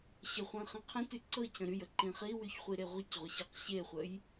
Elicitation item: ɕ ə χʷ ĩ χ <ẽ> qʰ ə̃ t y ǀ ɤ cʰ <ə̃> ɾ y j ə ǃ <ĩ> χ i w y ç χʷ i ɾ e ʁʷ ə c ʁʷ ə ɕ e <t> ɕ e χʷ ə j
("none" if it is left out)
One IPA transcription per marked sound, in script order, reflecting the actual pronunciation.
ĩ, ə̃, ĩ, q

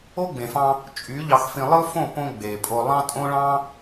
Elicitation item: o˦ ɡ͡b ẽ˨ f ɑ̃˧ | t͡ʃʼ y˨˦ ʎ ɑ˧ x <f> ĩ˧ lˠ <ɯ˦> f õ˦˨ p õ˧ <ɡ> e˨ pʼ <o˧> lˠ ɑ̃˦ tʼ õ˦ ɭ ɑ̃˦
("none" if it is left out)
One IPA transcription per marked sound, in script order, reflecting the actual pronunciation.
f, ɯ˦, ɡ͡b, o˧

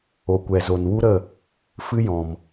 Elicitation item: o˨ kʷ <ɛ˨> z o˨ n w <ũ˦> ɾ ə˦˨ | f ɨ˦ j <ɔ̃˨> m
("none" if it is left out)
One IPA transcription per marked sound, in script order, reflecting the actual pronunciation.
ɛ˨, u˦, ɔ̃˨

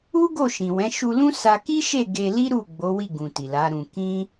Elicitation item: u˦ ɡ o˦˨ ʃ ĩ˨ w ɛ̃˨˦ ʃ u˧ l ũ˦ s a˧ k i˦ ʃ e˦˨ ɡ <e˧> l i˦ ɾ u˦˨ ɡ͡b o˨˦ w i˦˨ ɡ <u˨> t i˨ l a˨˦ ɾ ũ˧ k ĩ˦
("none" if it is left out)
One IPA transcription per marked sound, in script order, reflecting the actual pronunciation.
e˧, ũ˨

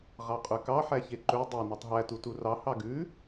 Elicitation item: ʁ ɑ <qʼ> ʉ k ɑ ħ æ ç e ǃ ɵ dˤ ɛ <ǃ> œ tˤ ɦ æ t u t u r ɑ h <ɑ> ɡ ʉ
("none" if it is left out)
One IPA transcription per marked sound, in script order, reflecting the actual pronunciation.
qʼ, n, ɑ

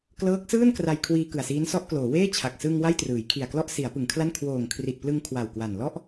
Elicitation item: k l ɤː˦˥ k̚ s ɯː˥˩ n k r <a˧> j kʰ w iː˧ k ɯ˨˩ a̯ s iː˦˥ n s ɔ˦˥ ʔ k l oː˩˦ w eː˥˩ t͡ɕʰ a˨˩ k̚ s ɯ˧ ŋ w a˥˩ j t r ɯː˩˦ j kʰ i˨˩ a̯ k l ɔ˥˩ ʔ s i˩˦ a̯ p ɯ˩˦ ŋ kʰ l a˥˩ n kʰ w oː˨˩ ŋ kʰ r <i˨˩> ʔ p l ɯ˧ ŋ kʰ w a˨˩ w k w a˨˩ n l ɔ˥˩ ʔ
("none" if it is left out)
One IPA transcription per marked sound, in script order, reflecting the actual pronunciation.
a˧, i˨˩

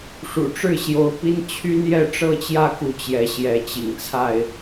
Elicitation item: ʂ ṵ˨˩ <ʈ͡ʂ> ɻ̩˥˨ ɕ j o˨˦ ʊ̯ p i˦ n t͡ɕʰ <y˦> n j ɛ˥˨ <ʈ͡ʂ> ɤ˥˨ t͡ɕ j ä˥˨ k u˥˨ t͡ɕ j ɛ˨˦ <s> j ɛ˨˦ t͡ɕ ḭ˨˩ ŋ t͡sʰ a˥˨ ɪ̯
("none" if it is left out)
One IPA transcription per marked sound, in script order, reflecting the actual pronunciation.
ʈ͡ʂ, y˦, ʈ͡ʂ, ɕ

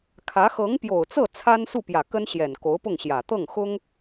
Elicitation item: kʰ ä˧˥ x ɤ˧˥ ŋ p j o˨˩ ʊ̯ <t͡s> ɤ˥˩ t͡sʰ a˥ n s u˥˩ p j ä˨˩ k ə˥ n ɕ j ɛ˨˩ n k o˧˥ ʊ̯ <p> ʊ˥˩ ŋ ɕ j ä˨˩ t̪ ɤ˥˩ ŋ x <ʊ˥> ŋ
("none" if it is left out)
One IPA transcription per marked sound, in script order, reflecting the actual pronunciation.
t͡s, p, ʊ˥

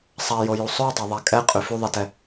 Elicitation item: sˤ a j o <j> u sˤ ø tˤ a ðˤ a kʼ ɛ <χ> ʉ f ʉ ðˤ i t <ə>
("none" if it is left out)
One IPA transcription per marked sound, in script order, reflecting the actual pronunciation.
j, qʼ, ɛ

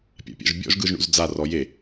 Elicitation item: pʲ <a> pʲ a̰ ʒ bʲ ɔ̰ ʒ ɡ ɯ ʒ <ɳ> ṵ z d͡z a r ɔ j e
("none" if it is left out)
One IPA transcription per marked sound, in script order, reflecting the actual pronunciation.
a̰, ɳ

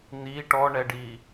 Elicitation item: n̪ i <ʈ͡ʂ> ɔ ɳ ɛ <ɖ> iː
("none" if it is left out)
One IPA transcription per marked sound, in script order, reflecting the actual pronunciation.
ʈ, ɖ

